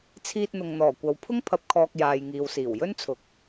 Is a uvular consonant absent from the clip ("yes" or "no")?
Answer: yes